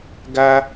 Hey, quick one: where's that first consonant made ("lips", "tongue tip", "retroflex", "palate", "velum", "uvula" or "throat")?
velum